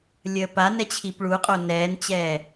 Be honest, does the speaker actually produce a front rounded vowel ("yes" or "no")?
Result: no